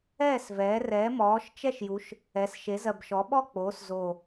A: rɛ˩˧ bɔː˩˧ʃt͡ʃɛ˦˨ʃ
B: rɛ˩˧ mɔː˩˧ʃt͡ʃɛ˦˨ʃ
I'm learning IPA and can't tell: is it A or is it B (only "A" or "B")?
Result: B